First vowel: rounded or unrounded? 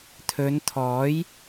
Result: rounded